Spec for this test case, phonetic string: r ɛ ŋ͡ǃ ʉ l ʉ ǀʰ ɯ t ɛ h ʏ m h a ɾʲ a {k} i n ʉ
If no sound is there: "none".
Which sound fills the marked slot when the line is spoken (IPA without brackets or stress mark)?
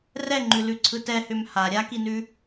k